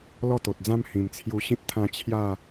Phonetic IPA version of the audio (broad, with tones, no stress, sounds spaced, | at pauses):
l ɔ˥˧ t̪ o˨ t̚ d͡z ã˦ m h ĩ˨˩ m t͡sʰ j u˧ ɕ ĩ˦ t̚ t̪ʰ ã˧ t͡ɕʰ j a˥˧